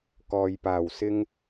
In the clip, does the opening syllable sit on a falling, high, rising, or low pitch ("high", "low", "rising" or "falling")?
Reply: low